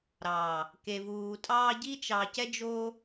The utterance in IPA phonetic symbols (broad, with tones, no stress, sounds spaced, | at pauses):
ɾ ɑ˨ | k e˨ v uː˨ tʼ ɑː˧ ɟ i˦ t͡ʃ ɑ˧ c ɛ˦ d͡ʒ o˦